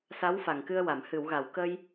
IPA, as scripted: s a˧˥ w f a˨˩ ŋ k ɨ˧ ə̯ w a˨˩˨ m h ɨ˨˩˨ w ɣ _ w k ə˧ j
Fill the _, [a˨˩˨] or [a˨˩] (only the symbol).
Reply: a˨˩˨